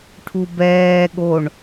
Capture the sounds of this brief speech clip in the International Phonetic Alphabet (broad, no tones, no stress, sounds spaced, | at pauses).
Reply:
ʈʰ u b ɛː ɠ o ɳ